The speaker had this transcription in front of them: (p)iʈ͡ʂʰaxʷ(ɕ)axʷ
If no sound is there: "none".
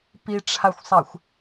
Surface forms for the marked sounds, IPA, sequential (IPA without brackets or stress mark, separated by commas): p, sˤ